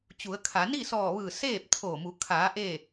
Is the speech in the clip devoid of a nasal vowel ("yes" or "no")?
yes